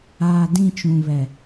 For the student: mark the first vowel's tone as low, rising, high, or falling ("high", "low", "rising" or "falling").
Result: low